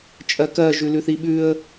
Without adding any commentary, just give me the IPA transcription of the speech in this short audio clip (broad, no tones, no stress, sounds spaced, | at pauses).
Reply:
t͡ʃʼ ɜ k ɜ ʒ ʉ l ʉ θ i ɓ ʉ ə̯